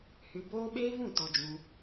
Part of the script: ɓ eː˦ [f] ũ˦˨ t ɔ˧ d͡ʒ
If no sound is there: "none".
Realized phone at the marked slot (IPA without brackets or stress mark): v